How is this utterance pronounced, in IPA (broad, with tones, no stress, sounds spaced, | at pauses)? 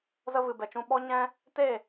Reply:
z ə˧ v ɨ˨ b ɛ˨ t͡ʃ ũ˧ ɓ ɔ˦ ɲ ɛ̃˦ | t e˦˨